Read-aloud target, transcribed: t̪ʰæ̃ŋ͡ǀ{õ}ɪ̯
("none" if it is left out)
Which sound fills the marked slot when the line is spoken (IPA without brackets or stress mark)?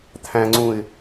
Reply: ũ